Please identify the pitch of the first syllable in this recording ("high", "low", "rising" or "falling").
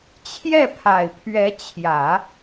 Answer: falling